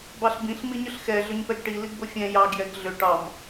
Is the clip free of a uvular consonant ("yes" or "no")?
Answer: yes